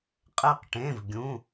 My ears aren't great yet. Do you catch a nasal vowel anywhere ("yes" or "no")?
yes